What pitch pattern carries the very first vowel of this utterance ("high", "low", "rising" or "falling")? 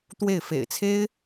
falling